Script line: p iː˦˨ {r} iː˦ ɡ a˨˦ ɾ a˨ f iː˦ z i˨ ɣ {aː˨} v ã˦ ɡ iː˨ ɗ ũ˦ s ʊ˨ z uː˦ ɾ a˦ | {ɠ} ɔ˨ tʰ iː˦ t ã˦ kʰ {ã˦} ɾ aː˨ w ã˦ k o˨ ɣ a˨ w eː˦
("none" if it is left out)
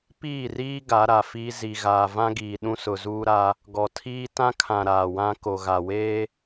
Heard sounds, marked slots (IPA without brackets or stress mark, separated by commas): r, aː˨, ɡ, ã˨